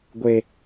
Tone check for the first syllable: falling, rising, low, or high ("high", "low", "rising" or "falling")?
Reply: high